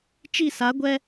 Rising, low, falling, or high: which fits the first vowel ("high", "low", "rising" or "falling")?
falling